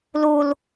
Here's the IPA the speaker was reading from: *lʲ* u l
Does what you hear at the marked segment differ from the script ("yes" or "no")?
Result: yes